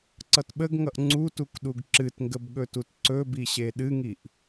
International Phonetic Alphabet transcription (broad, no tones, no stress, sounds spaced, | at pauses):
ǀ ʌ t ɓ ə ɡ ŋ ʌ ʔ ŋ͡ǀ u t u k ɗ u ɡ ǁ ɨ t ŋ ɡ ə b ɠ ɵ t u t ǀ ɵ b i ɕ e ɗ ɨ ŋ i ʔ